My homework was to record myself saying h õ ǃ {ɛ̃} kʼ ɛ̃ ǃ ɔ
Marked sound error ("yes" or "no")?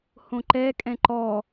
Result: yes